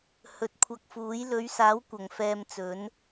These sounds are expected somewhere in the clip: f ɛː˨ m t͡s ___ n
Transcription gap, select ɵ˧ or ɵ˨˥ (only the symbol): ɵ˨˥